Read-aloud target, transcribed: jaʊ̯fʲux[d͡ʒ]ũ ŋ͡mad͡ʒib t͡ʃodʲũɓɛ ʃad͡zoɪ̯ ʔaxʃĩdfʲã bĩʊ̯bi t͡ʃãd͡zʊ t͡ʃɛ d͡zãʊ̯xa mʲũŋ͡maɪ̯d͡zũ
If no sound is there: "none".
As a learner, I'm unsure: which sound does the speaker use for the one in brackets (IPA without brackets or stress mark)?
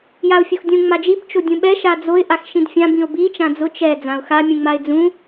dʲ